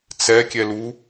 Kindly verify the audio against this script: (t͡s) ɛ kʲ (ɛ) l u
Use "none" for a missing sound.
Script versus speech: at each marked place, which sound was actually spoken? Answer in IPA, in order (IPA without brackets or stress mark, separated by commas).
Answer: t͡s, ɛ